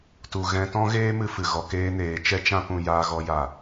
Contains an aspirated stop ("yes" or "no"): no